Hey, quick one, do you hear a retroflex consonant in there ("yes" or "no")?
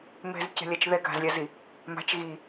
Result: no